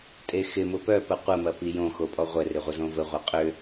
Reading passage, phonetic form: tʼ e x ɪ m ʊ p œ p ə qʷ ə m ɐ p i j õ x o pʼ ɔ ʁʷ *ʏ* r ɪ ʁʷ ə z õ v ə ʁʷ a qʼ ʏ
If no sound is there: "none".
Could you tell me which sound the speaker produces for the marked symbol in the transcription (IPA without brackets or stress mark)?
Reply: ɛ